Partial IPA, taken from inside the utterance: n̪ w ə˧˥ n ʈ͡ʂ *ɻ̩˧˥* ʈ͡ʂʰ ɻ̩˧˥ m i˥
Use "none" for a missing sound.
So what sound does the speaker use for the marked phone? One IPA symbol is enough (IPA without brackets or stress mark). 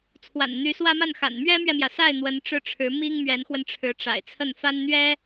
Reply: ɻ̩˥˩